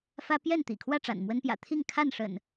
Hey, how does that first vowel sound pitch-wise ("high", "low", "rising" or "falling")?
high